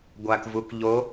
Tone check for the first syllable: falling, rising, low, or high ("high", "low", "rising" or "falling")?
low